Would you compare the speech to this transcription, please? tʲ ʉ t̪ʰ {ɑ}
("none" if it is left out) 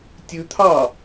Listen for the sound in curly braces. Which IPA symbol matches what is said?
ɑ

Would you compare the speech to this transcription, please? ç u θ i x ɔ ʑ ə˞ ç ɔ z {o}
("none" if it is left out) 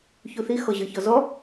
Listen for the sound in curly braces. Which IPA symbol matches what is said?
ɔ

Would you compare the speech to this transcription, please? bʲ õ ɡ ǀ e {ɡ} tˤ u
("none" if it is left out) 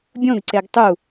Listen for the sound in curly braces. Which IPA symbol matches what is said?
ɡ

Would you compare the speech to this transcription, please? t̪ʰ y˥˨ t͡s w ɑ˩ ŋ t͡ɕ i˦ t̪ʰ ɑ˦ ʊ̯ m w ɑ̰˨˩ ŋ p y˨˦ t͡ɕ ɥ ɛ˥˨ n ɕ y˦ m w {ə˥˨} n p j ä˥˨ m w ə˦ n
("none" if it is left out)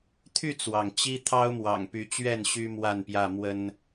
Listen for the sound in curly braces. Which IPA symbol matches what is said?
a˥˨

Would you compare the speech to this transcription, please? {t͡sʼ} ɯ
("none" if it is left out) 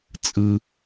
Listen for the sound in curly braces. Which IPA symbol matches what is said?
t͡sʼ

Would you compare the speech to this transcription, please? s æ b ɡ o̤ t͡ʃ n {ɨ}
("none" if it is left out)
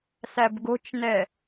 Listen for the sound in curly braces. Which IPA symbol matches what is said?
ɛ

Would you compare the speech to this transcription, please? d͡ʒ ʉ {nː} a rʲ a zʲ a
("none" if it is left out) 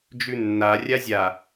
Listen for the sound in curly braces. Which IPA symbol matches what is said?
nː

